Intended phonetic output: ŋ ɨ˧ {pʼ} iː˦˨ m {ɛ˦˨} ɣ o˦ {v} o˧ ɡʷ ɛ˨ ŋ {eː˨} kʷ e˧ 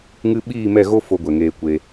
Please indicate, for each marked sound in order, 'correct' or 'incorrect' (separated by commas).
incorrect, correct, incorrect, incorrect